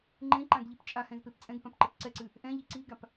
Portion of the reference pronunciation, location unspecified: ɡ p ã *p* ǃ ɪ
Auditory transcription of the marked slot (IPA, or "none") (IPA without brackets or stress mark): p